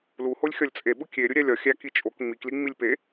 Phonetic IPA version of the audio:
luholʲ xʲɒlʲt͡sʼe ɓukʲeɾʲu ɾʲælʲɒ xʲæ kit͡ʃʼok ŋ͡mikli ŋ͡milʲpe

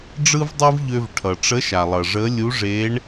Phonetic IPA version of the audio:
ɖ͡ʐɯ˥vdˤɯ˥vʎø˧v ʈʰʌ˩ʈ͡ʂə˧˥ʃa˩lˠʌ˩ ʐə˧˥ lʲu˧˥ʐe˧˥ɳ

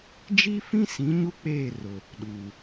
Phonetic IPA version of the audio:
d͡ʒi˦fĩ˦sĩ˨˦ ɲu˦k͡peː˦˨ rʊ˨ | ɗu˨

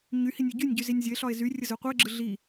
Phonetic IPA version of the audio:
ɲy hinʲɯɟynʲɟy zinʲzʲəe̯ɬɒe̯ zyrʲə zøqʷɯe̯ɡ͡ǁɯ ɮi

